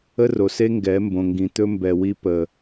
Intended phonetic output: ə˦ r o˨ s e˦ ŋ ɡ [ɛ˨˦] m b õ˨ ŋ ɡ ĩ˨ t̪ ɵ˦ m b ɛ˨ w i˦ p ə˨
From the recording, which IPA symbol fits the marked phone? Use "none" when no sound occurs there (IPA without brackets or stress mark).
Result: ɛ˨˦